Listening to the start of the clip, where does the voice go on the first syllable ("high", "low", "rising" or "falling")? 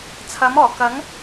rising